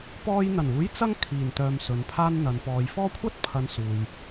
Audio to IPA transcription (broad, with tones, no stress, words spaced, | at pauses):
pɔː˧jn̪ɐ˨˩nuː˨˥j t͡sɐ˥ŋkʰiː˨˩nt̪œː˨m sɵ˨˧npʰaː˥nn̪ɐ˨˧n pɔː˨jfɔː˥ kʷʰɐ˥t̚pʰɐ˨˧n suː˨j